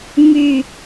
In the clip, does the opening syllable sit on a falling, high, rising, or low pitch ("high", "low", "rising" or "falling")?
low